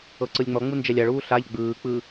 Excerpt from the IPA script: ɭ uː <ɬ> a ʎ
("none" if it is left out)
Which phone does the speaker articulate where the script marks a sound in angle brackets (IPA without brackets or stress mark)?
ɬ